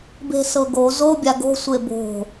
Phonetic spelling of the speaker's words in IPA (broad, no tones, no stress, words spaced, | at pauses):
be̤sɤɡo zobʲa ɡo̤sʷe bo̤